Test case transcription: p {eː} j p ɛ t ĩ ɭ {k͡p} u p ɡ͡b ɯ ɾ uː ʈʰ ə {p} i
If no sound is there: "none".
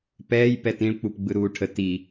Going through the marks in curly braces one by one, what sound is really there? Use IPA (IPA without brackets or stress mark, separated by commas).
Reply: ɛː, k͡p, t